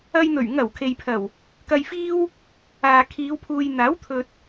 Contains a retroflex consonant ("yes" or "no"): no